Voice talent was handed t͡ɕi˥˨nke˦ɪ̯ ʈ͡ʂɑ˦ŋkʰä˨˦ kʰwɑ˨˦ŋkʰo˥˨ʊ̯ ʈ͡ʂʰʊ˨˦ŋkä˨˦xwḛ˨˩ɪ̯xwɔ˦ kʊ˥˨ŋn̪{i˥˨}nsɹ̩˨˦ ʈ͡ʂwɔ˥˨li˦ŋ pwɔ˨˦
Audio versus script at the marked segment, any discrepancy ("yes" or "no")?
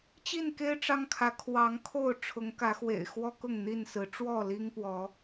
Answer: no